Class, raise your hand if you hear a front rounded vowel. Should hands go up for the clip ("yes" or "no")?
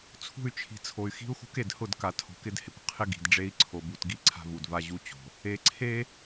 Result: yes